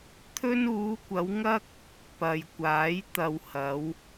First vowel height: mid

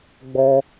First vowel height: mid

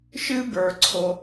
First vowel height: high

